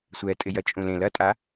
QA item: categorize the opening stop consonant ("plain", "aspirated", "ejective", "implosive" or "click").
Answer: ejective